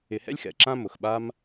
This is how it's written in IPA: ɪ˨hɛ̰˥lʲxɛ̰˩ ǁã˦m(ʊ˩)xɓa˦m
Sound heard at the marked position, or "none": ʊ˩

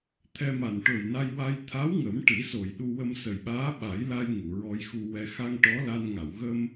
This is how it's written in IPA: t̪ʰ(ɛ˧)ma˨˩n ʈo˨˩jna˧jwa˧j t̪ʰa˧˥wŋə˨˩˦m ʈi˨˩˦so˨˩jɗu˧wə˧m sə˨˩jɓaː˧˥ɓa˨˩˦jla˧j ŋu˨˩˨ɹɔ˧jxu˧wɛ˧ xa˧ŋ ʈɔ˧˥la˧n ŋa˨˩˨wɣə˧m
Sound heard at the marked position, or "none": ɛ˧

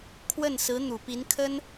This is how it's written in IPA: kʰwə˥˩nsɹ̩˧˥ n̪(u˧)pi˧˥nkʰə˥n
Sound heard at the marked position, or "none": u˨˩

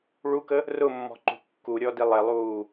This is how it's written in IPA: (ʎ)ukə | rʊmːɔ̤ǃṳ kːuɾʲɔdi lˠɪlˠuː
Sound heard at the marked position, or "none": ɭ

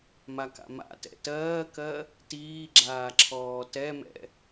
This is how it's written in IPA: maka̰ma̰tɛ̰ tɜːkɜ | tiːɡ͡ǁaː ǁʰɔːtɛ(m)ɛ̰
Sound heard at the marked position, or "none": m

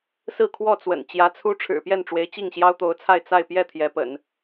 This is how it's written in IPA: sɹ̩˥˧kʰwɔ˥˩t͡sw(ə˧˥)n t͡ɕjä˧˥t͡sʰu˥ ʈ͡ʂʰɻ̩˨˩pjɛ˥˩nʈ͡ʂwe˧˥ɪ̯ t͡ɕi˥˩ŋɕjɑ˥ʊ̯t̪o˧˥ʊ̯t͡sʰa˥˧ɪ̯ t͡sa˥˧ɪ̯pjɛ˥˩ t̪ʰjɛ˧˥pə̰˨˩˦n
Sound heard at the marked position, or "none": ə̰˨˩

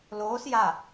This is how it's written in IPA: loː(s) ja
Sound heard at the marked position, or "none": s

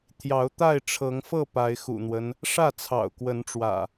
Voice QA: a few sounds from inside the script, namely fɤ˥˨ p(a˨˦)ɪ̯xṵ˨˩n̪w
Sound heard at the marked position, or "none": a˨˦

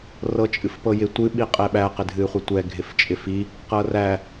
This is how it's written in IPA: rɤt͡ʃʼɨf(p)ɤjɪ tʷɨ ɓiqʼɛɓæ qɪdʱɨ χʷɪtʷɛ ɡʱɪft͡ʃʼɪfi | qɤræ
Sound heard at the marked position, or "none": p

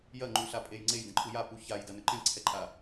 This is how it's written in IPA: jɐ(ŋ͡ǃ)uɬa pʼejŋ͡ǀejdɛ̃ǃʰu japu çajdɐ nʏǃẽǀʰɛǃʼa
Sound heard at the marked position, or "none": ŋ͡ǃ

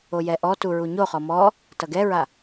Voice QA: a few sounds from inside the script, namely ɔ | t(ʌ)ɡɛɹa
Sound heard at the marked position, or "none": ʌ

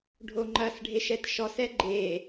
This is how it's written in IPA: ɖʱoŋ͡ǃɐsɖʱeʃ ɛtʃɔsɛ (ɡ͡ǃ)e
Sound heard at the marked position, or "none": ɡ͡ǃ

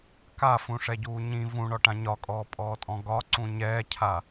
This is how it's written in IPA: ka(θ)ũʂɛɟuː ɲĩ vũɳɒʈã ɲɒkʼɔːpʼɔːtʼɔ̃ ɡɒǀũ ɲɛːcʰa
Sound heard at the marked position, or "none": f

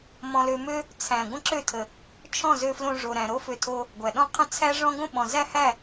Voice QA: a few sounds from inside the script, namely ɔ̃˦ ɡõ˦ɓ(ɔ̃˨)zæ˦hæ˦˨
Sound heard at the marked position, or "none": ɔ̃˨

